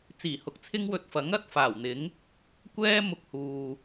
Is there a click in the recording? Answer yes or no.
no